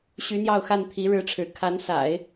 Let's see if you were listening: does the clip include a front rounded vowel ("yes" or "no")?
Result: yes